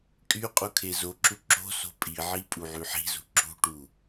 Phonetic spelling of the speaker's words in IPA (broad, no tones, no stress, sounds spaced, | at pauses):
kʼ y qʼ u kʰ e z o ǁ u ǁ o̤ s o̤ pʼ i ʕ i pʼ u ʕ y ħ i̤ z ṳ ǁ ṳ ʈ u